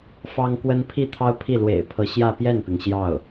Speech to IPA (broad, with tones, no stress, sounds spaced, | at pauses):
f ɑ˥ ŋ k w ə˥ n pʰ i˥˩ t̪ʰ ɑ˥ ʊ̯ pʰ i˥˩ l w ḛ˨˩ ɪ̯ pʰ ɤ˧˥ ɕ j ä˥˧ p j ɛ˥˩ n p i˩ ŋ ɕ j ɑ˥˩ ʊ̯